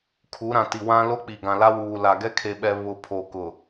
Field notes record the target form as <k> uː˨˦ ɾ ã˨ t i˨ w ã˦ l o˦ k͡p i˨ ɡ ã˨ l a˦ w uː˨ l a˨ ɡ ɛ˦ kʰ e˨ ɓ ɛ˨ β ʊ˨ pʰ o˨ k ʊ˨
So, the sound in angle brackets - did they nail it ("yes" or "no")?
no